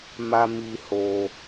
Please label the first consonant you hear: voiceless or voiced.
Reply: voiced